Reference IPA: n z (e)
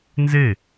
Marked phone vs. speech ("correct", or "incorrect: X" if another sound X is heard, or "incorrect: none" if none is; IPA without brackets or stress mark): correct